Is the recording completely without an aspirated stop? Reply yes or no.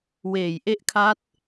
no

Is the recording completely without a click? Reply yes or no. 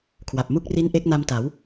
yes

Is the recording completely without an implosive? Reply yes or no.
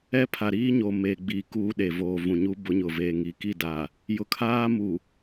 no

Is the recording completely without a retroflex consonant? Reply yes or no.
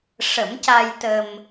no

